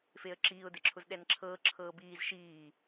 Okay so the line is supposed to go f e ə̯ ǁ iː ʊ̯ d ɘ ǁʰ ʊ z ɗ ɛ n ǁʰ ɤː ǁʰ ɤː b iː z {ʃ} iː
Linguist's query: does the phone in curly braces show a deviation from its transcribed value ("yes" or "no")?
no